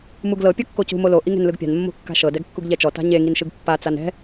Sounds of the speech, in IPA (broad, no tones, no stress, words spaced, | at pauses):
muɡlɤ pʲɤkːocṳ molo ʔiŋɛ̤nlɯɡpʲa̤n mːo̤kːa̤ʃɤ dɛɡkːuɡʎɛt͡ʃɔ ta̤ɲe ŋinʃɯɡpːa t͡sanɛ̤